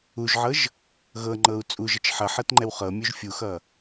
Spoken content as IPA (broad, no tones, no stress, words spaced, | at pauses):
uʒʕɤʒ | ɣɤŋ͡ǃɤu̯ t͡sʼuʒət͡ʃ ħʌħɤtŋ͡ǃɛw χɤmʲuʒ fʲuxʌ